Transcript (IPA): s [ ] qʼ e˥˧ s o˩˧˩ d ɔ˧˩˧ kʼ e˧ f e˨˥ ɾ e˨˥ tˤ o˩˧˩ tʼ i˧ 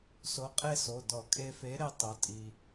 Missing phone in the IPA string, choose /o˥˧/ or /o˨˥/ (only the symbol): o˨˥